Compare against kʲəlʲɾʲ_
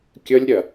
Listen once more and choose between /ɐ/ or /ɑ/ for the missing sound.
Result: ɐ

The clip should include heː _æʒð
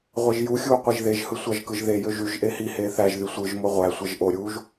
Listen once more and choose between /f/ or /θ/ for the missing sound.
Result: θ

